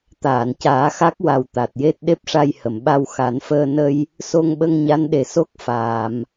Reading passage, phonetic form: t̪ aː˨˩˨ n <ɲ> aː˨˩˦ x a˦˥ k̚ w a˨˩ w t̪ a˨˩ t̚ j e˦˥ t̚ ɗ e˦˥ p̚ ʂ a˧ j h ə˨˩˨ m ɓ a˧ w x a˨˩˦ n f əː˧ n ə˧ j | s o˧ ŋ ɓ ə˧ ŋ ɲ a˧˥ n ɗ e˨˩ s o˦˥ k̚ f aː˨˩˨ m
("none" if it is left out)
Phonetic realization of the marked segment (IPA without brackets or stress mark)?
c